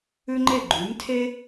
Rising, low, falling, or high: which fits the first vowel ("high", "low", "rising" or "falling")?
high